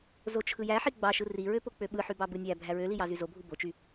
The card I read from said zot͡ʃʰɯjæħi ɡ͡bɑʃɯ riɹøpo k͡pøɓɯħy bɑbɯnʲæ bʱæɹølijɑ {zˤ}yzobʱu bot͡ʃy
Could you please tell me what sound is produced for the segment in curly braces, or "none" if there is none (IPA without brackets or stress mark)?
z